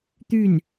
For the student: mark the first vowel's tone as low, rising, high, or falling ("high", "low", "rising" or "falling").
falling